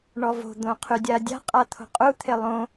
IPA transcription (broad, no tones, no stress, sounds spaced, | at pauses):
ɳ ɔ v o̤ d̪ õ qʰ y dʲ a dʲ a̤ qʼ a t̪ʰ o̤ qʼ u t̪ʰ e lˠ õ